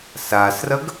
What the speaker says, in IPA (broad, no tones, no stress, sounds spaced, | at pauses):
s a s r ɐ ɡ